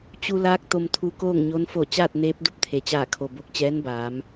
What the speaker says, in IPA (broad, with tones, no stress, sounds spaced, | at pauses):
t͡ɕ u˧ l aː˧˥ k̚ t̪ o˧ m t̪ʰ u˧˥ k oː˥˨ ŋ ɲ o˧˥ n f o˧˩ t͡ɕ aː˥˨ t̚ n eː˧˥ p̚ d u˧ p̚ t̪ʰ e˩˧ t͡ɕ aː˧˩ kʰ o˩ b o˧˩ k̚ t͡ɕ ɛː˧˥ n b aː˩˧ m